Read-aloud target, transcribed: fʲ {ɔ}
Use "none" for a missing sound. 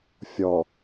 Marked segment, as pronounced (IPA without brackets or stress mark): ɔ